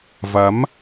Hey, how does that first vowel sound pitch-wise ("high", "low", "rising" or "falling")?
rising